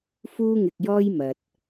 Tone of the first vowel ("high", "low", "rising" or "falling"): high